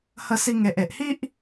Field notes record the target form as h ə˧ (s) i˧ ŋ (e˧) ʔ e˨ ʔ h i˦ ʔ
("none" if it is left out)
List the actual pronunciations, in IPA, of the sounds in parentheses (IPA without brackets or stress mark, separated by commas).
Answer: s, e˨